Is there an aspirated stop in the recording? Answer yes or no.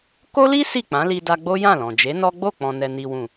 no